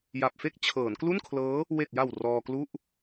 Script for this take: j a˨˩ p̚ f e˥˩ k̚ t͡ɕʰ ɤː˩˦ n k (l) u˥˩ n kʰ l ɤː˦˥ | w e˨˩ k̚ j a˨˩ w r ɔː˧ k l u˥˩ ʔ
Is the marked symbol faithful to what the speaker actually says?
yes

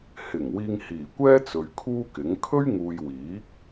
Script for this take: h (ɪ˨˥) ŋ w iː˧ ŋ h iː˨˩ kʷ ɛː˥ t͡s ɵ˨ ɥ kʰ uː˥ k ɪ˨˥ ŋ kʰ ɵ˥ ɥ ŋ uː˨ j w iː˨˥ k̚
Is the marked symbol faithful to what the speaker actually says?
no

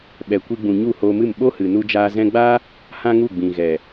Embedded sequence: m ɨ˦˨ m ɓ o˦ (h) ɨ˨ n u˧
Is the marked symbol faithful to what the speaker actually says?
yes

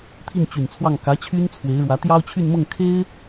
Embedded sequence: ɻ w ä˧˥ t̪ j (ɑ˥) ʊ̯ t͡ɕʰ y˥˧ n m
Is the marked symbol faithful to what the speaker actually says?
yes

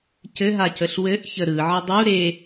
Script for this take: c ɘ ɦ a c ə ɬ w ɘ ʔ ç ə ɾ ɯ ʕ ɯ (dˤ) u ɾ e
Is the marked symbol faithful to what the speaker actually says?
yes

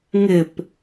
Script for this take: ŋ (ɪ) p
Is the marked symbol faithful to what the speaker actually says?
yes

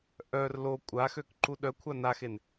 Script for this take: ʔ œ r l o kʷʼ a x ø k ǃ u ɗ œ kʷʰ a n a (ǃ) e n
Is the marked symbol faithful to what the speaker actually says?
no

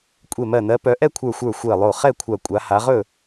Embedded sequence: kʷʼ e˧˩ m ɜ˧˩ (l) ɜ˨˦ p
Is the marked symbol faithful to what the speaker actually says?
no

